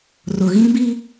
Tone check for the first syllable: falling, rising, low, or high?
low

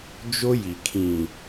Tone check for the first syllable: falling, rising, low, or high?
high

